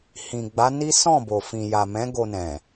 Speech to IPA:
h ĩ˨ ɡ͡b a˨˦ n i˦ s ɔ̃˦˨ b o˨ f ĩ˨ j a˨ m ɛ̃˨˦ ɡ o˧ n ɛ̃˨

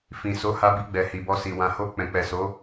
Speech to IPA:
f ĩ˨ s o˨˦ h a˧ b i˧ ɡ͡b ɛ˨ h i˨ b ɔ˧ s i˨ w ã˨ h o˧ k͡p ɛ̃˨ k͡p ɛ˨ s o˨˦

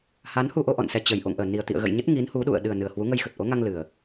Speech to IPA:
h a˨˦ n h u˧ ʔ o˧ ʔ ɔ̰˧˨ n s ɛ˧ t͡ɕ ə˨˩ j ʔ o̰˧˨ ŋ ʔ əː˧˩ n i˨˩ ə̯ t̪ ḭ˧˨ ə̯ ɣ ə̰˧˨ j ɲ ə˦˥ t̚ ŋ i˨˦ n h u˨˦ ɗ ṵ˧˨ ə̯ ɗ ɨ˨˩ ə̯ n ɨ˨˩ ə̯ h w u˨˦ ŋ ə˧ j x ə˨˩ t̚ ʔ o˨˦ ŋ a˧ ŋ l ɨ˨˩ ə̯

